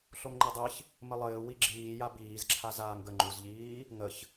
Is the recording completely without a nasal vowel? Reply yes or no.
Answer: yes